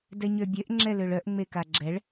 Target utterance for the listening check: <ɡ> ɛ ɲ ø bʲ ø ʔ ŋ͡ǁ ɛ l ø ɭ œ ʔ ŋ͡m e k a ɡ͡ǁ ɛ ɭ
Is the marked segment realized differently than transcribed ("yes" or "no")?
yes